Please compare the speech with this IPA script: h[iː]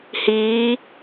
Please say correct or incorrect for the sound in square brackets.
correct